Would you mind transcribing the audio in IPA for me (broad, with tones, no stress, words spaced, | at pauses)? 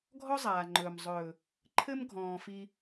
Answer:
ɡʱɔ˦ zˤaː˨ŋ͡ǃɵː˨m zˤɵː˨ | ǃʰɘ˦m ɡʱɔ̃ː˨fi˧